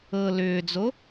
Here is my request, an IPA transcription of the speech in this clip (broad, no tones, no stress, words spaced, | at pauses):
ɤ lʏːd͡zo